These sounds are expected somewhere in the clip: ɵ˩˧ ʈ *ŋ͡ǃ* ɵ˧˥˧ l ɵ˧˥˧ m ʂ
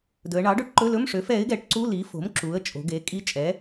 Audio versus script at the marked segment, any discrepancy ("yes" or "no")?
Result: yes